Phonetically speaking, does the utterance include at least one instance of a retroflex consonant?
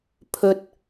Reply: no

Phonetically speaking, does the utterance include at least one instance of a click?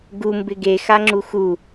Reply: yes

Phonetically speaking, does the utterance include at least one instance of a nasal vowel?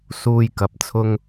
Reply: no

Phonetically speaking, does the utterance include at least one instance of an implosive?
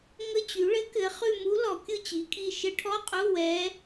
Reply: no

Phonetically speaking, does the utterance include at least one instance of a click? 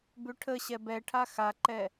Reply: yes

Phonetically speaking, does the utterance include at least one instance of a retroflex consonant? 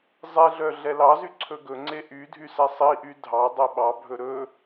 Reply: no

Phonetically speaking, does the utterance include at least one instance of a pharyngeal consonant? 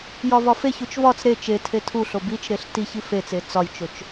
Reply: no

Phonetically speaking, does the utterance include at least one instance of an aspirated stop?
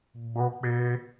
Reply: no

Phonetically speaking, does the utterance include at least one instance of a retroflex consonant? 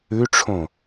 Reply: yes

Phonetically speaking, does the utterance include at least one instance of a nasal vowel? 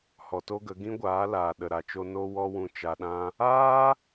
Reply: yes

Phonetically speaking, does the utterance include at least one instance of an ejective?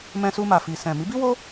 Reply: no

